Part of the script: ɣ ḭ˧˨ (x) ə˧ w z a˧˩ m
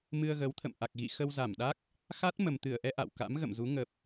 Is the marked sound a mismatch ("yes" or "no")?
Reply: no